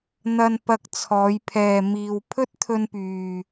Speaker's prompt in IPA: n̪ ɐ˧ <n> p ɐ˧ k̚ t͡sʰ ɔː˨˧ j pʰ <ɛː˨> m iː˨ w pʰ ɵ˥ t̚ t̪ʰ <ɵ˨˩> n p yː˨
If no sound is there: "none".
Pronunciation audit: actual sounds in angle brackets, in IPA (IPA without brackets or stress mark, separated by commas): n, ɛː˨, ɵ˧